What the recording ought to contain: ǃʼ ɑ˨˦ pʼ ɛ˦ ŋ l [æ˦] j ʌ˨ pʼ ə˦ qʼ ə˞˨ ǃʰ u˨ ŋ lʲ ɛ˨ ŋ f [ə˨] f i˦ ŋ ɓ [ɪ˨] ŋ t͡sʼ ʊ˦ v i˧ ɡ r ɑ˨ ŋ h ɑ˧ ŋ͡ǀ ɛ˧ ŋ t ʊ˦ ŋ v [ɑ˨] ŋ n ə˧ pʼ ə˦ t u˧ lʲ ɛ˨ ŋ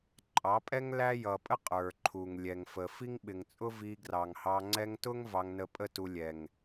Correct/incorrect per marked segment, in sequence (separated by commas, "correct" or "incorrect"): correct, correct, correct, incorrect